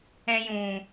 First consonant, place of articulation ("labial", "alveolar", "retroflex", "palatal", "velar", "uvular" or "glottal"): palatal